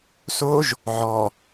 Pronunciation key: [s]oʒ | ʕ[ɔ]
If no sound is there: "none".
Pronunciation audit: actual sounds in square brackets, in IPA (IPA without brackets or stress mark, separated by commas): s, ɔ